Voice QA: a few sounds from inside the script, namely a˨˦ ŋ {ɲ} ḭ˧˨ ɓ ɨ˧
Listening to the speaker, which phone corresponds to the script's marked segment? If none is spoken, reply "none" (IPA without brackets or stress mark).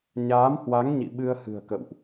ɲ